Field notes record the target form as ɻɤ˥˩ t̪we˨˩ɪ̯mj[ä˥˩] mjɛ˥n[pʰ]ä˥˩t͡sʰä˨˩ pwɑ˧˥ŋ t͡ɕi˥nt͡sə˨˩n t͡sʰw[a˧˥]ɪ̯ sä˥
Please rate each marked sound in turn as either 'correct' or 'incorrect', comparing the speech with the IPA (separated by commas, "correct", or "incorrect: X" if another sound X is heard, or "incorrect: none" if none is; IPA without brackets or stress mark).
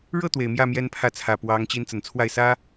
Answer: correct, correct, incorrect: a˥˩